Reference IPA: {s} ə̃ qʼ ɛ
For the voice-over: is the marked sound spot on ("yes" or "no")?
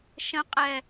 no